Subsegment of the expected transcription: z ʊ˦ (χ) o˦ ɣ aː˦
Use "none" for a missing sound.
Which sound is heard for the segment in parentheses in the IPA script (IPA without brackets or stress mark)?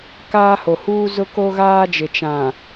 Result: k